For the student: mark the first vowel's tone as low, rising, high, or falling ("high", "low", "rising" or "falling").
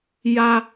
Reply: low